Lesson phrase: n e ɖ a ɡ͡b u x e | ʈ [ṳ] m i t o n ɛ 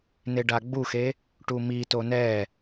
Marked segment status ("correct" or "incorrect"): incorrect